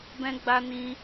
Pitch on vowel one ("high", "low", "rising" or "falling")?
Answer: high